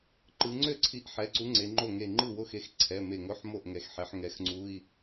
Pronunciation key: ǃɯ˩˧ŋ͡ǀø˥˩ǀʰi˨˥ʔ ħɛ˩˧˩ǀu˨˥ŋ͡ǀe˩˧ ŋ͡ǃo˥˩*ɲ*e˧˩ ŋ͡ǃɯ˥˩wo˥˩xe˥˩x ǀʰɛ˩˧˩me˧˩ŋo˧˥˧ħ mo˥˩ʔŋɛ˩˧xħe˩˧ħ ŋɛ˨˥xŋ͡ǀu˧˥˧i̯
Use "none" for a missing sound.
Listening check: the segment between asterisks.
ŋ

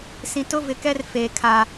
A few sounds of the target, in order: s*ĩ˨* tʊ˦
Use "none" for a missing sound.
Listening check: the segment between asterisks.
ĩ˨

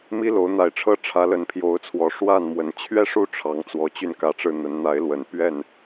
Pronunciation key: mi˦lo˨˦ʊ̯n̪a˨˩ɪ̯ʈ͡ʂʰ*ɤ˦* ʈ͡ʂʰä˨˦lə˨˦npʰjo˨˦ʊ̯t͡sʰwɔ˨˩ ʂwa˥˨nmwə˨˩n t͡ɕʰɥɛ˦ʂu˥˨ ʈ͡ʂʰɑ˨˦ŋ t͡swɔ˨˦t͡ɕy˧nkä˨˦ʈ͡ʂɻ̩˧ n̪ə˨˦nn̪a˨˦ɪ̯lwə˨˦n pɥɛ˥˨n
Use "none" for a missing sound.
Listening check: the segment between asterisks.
ɤ˦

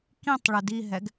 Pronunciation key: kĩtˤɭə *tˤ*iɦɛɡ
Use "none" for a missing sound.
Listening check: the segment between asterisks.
d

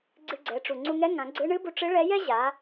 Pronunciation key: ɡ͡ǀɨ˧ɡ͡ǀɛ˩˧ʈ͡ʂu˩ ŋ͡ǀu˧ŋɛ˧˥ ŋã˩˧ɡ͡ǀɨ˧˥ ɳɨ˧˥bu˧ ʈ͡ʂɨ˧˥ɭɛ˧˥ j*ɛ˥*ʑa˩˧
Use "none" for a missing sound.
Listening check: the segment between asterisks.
ɛ˥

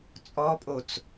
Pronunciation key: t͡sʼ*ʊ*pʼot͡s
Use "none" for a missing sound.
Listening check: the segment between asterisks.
ɔ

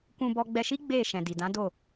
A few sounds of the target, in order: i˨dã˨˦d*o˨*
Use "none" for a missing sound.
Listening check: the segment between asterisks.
o˦˨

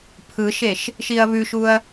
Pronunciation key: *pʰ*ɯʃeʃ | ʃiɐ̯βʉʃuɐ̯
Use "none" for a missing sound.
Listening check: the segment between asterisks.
pʰ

